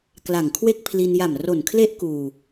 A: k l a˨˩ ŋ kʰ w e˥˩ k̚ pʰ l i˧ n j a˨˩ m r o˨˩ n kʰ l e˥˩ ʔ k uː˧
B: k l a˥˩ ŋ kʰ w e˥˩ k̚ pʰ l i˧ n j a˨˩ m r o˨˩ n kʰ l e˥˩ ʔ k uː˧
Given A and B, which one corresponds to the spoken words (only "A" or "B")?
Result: A